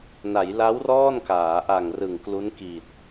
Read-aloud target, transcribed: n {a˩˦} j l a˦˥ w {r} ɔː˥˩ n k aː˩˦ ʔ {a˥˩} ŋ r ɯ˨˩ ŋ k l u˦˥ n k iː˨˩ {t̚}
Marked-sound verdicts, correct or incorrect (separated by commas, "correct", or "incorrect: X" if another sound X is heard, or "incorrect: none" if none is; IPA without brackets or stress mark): correct, correct, incorrect: a˨˩, correct